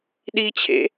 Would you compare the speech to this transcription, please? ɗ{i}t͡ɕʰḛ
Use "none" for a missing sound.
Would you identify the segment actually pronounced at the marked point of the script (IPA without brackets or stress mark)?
i